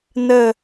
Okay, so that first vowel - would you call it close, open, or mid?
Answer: mid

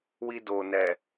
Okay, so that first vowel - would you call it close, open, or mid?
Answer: close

